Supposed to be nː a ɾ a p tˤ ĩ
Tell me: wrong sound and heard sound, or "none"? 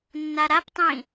none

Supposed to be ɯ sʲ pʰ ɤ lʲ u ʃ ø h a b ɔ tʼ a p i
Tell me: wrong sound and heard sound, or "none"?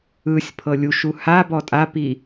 ø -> u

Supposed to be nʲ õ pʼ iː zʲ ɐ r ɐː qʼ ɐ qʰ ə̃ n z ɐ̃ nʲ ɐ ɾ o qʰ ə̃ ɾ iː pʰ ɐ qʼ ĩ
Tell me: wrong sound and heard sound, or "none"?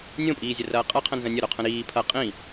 none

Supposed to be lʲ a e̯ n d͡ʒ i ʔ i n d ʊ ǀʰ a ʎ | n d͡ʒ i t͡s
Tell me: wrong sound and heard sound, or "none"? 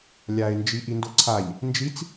none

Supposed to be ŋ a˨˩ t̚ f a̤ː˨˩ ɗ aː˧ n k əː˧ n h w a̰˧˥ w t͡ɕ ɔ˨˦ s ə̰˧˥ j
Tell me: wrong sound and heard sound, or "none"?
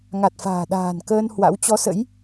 aː˧ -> a̤ː˨˩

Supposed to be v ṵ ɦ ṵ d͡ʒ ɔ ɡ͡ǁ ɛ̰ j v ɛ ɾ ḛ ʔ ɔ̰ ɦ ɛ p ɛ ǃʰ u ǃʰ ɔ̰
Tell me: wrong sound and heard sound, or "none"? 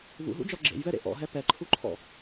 ɛ̰ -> ḛ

